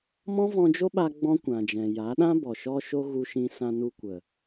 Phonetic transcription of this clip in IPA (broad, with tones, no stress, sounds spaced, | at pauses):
m ɔ̃˦ v ɔ̃˧ d͡ʒ o˦ ɓ a˧ ɡ͡b ɔ̃˦ kʷ ã˨ d͡ʒ ɛ̃˨ j a˨˦ ɗ ã˦ b ɔ˨ ʃ ɔ˦ ʃ o˦ ɣ u˧ ʃ ĩ˧ s ã˧ n u˧ kʷ ə˨